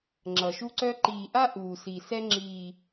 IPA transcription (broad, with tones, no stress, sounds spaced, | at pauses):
ŋ͡ǁ ʌ˨ ʃ u˦ ǀ œ˦ ǃ iː˨ ʔ a˦ ʔ uː˨ s i˨ s ɛ˦ ŋ͡ǁ iː˨